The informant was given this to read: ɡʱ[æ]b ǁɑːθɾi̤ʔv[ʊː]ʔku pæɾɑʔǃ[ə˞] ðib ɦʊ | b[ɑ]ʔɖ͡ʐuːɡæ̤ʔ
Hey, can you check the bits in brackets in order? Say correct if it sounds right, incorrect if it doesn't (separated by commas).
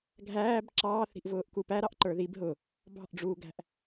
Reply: incorrect, correct, correct, incorrect